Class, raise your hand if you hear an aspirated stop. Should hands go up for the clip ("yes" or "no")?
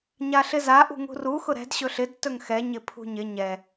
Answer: yes